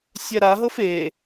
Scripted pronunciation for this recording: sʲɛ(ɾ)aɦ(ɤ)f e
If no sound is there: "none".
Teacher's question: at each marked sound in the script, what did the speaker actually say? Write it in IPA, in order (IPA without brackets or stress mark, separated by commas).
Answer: ɾ, ɤ